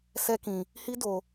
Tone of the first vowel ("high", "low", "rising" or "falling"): high